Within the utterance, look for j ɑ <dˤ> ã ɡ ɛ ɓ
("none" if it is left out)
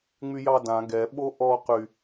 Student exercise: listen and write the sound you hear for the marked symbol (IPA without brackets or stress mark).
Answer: d